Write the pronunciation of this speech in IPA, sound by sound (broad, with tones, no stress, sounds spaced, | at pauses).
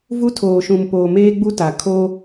v u˦ tʰ oː˨ ʃ ũ˨ m p oː˨ m eː˦ ɡ͡b u˦ t a˨ kʰ oː˦